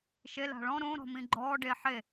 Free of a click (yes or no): no